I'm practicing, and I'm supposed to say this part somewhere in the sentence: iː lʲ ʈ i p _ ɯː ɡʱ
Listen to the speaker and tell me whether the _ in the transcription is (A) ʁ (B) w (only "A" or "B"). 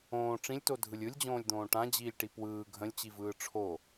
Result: B